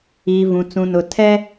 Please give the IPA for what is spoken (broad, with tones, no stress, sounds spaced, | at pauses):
iː˨ v ũ˨ t͡s ũ˨ n ʊ˨ tʰ ɛ˦